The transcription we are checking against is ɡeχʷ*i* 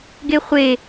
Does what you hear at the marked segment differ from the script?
yes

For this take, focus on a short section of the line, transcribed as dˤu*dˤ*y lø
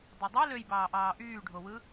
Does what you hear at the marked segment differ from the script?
no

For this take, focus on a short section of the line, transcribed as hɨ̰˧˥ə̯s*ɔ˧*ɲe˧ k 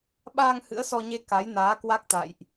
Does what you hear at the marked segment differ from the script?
no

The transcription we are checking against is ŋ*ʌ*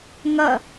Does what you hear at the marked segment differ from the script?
no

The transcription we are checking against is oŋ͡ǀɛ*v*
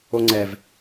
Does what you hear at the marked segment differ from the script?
no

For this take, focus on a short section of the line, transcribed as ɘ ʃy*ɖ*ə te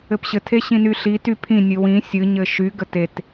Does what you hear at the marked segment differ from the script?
yes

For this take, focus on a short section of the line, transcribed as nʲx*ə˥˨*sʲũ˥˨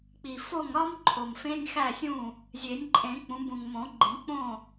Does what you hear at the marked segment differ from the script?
yes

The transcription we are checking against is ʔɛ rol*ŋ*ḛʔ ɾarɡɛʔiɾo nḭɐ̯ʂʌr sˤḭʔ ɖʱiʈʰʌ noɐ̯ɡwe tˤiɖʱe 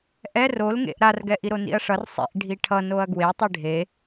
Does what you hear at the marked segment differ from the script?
no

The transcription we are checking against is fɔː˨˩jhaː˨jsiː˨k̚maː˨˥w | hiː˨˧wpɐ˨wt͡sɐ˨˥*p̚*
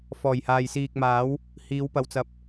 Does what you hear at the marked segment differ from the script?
no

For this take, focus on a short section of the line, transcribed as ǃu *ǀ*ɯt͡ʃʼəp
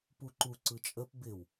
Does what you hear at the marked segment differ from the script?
no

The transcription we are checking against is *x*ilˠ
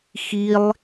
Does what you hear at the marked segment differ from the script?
no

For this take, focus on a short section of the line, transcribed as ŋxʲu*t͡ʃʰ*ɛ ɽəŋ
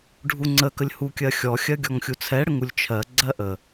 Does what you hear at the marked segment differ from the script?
yes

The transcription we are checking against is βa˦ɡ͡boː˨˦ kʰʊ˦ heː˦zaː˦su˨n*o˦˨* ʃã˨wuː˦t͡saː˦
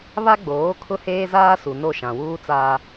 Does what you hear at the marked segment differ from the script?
no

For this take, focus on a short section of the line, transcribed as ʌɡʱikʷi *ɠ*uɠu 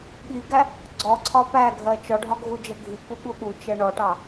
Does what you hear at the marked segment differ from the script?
no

